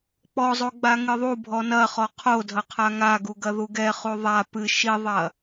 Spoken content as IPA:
k͡pɔzˤo ɡ͡baŋɨðˤubʱɔ nɐ χɔqʰodʱɐ qʰaŋaɡu ɡɐðuɡɛχu ðˤa pɨ ʃiðˤɐ

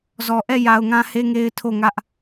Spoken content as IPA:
zɔ˨ʔɛ˦˨ ja˨ʊ̯ŋã˦ he˦ŋe˦ɪ̯tʰo˦˨ŋä˦ʔ

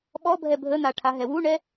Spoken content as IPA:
ɓɔbʱɛ bʱən̪aʈʰaɦɛ wuɳɛ

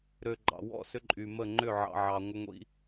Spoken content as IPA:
ɾø˨ ɡ͡ǃɑ̰˨wɔ̰˦˨ sʏ˦ǃʼy˨ mə˦˨ŋ͡ǃʏ˦˨ ʕɑ̰˨ʕɑ˨ ŋʷə˦ŋʷḭ˦

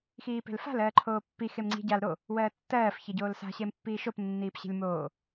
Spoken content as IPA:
xiːpe̤lfa̤l ɜːǃʰoːpːi xemŋ͡ǀi̤ ɟal ɾo | wɜːtːɜːf çeɟoːlsa̤ ɕempːiːʃop nːiːpɕe̤lʲmoː

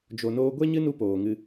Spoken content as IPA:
d͡ʒo˧noː˦ ɡʷe˦ɲɨ˦nu˧ poː˨ŋɨ˧

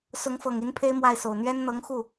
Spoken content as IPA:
sʊ˧˥ŋfɤ˨˩ŋi˧˥n pʰe˥ɪ̯mwa˥˩ɪ̯so˨˩ʊ̯ n̪ɥɛ˥n n̪ɤ˧˥ŋxu˥˩

